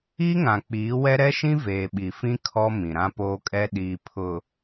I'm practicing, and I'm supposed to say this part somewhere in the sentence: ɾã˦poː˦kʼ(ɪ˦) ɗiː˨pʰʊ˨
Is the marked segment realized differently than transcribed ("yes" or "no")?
yes